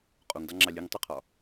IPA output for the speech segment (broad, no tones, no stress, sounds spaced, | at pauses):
qʼ o ŋ d ɑ ŋ͡ǁ ɑ lʲ ɨ ŋ tˤ o qʰ ɒ